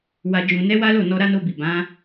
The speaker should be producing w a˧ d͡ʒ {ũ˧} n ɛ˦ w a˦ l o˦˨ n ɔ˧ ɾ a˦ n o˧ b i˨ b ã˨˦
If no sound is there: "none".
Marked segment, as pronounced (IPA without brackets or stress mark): ũ˧